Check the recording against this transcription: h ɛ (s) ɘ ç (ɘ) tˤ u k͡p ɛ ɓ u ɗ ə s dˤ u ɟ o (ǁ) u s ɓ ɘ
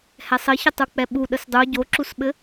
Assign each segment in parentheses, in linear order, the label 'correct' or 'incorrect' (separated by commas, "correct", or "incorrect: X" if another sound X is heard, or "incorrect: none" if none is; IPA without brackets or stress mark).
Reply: incorrect: sˤ, correct, correct